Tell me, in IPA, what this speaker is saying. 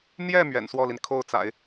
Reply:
n̪ j ɛ˥˩ m ɥ ɛ̰˨˩ n s w ɔ˥˩ l i˩ n kʰ o˥˩ ʊ̯ t͡s a̰˨˩˦ ɪ̯

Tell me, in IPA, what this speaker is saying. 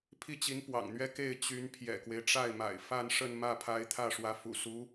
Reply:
pʰ i˥˩ t͡ɕ i˧˥ n p w ɑ̰˨˩ ŋ n̪ ɥ ɛ˥ k e˥˩ ɪ̯ t͡ɕ y˧˥ n pʰ j ɛ̰˨˩ k w e˦ ɪ̯ ʈ͡ʂ a˥˩ ɪ̯ m a̰˨˩ ɪ̯ f a˥˧ n ʂ ə˥˧ n m ä˥˩ pʰ a˧˥ ɪ̯ t̪ʰ ä˥˩ ʂ w ä˧˥ f ṵ˨˩ s u˧˥

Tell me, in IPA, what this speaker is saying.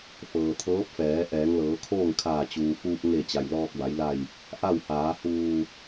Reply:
f ɤː˩ t̪ʰ ɤː˧˥ p̚ f ɛː˩˧ ʔ ɛː˩˧ ŋ l ɤː˩˧ kʰ oː˥˨ ŋ kʰ aː˧˩ t͡ɕ uː˩ f uː˧ p̚ ŋ e˧˩ t͡ɕ a˩ j l ɔː˧ k̚ b a˩˧ j l a˧˩ j | ʔ a˥˨ w h aː˩˧ h uː˧˩

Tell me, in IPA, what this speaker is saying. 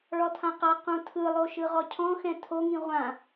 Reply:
ɭ ɔ tʰ ã q a q ũ tʰ ɯ lˠ o ʃ ɯ ʁ ɔ cʰ ɔ̃ x ɛ̃ tʰ o ŋ ĩ ʁʷ ã

